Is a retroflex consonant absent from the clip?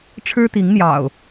no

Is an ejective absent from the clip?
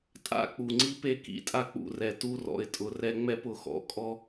no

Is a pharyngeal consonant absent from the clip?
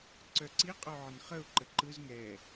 no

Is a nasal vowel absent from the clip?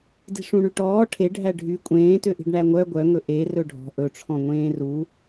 no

